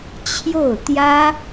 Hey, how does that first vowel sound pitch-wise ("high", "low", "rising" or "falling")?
falling